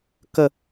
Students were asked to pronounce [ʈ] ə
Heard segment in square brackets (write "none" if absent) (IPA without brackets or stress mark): k